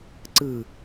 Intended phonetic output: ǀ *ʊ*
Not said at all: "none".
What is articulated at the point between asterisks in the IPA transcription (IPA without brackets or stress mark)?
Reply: ɯ